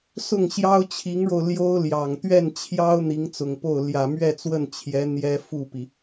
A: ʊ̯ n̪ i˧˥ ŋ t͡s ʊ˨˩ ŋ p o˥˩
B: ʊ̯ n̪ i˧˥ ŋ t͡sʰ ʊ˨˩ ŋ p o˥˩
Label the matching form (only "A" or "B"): A